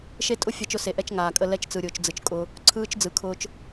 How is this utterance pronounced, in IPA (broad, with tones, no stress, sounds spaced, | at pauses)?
ʃ e˦ tʼ ʊ˦ fʲ a˦ t͡ʃ ʊ˦ s e˨ ʔ ɛ˦ t͡ʃ ŋ aː˨ kʼ ə˦ l ɛ˦ t͡ʃ t͡s ɯ˨ ɾʲ ʊː˨ t͡ʃ d͡z ɯ˨ t͡ʃ kʼ ʊ˦ | ǀʰ ɯː˦ t͡ʃ d͡z ɯ˨ kʰ ʊː˦ t͡ʃ